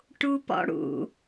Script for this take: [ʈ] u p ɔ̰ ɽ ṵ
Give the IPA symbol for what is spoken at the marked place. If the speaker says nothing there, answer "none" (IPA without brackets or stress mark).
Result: ʈ